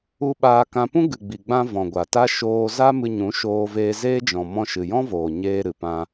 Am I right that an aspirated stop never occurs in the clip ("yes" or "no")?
yes